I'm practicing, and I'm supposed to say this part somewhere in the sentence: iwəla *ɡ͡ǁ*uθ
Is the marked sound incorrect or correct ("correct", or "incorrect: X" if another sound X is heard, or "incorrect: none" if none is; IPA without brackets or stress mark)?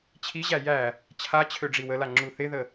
incorrect: ŋ͡ǁ